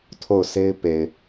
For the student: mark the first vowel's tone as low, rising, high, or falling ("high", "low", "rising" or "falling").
falling